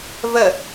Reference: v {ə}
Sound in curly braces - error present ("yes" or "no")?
no